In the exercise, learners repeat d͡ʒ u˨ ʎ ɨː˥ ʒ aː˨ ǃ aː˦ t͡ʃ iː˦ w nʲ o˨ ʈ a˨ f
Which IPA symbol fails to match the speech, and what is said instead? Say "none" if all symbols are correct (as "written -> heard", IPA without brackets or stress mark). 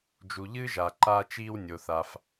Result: ʈ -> θ